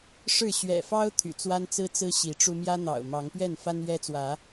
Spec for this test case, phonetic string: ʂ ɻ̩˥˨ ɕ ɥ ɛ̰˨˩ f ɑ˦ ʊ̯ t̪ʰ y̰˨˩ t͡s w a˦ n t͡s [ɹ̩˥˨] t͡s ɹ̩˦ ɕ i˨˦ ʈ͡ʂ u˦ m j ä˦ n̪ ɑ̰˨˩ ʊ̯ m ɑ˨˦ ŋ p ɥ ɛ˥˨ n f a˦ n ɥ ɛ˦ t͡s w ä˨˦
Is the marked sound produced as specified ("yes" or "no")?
no